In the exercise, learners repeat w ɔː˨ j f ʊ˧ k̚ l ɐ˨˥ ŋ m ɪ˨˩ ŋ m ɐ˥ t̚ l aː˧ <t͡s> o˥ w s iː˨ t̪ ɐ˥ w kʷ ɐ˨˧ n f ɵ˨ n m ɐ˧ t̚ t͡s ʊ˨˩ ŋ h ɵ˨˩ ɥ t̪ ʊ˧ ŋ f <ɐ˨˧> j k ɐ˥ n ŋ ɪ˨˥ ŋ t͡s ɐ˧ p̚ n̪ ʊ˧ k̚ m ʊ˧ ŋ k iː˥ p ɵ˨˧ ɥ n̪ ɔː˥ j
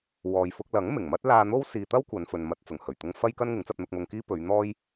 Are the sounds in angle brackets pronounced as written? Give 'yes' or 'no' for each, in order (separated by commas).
no, no